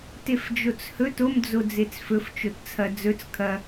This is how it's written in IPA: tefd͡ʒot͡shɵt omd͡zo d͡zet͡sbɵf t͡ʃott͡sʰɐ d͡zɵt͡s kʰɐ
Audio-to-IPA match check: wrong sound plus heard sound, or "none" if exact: b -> f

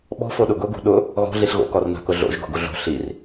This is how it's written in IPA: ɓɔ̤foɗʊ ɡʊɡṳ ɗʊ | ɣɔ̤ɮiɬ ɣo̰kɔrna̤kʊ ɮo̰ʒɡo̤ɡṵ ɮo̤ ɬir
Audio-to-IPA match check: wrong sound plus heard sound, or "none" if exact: ṵ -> u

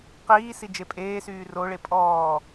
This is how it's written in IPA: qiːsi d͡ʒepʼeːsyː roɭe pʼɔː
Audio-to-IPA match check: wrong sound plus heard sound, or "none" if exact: none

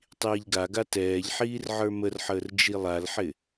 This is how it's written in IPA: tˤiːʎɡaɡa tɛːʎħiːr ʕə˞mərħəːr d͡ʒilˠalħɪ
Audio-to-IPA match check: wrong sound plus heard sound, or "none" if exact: none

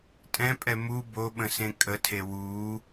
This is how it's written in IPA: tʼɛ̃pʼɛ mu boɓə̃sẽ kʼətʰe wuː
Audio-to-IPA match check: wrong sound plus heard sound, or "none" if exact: none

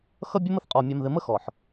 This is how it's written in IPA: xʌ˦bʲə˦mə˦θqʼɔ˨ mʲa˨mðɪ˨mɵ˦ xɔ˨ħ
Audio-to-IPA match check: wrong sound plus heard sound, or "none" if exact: ɵ˦ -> ə˦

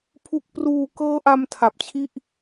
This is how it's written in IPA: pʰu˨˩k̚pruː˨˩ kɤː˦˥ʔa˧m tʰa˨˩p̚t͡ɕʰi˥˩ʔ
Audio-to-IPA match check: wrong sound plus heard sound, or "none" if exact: none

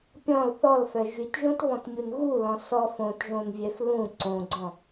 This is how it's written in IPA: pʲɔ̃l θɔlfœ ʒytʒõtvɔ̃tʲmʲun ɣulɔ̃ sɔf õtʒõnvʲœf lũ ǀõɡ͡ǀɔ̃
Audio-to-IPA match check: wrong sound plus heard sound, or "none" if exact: tʲ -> t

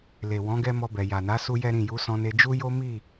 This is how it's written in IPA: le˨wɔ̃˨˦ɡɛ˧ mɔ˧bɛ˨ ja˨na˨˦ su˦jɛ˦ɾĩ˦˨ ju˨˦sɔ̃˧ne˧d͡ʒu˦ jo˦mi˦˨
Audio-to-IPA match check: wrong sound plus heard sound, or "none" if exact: none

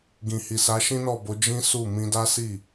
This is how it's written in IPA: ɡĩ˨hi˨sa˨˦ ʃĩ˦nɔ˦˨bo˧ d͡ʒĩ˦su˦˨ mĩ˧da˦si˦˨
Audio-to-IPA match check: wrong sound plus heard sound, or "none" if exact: o˧ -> o˨˦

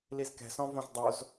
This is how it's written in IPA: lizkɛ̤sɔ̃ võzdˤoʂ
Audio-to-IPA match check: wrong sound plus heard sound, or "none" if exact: ʂ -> z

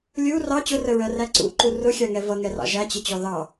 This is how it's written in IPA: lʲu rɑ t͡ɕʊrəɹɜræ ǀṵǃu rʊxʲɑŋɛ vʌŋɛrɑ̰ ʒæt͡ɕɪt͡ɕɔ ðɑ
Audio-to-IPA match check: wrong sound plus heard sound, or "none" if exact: none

